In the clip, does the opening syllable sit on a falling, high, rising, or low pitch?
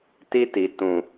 high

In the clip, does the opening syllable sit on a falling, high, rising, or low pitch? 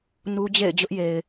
high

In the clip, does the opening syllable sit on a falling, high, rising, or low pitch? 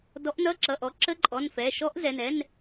rising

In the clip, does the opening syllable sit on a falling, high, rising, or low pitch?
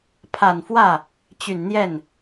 low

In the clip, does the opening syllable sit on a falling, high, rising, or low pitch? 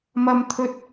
high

